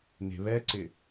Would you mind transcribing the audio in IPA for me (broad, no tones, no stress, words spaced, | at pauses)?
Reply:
ne̤βɛǀɪ